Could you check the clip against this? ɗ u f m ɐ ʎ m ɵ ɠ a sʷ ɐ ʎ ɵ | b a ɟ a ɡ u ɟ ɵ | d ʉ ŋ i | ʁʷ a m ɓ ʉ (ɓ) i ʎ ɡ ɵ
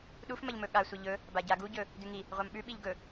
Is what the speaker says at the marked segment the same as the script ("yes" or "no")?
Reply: yes